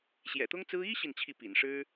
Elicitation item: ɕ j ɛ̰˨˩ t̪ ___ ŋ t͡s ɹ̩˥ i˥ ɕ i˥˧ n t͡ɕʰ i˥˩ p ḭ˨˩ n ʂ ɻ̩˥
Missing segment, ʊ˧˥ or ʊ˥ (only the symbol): ʊ˥